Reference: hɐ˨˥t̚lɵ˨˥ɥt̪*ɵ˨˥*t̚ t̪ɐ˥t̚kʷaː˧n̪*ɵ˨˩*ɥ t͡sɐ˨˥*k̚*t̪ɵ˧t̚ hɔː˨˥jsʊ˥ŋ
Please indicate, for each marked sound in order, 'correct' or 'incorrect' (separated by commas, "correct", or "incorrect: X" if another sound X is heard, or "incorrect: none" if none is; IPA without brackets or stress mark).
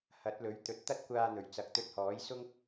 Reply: incorrect: ɵ˨, correct, correct